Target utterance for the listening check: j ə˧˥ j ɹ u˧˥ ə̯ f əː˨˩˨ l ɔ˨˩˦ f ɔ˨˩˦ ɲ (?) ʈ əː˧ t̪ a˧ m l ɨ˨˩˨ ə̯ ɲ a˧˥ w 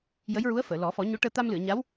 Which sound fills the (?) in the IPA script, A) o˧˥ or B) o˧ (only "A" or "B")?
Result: A